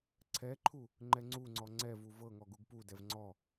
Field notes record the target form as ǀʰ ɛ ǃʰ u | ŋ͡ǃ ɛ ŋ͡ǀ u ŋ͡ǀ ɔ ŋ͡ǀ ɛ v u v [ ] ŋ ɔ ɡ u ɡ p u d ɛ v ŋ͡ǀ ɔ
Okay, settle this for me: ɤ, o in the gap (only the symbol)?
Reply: ɤ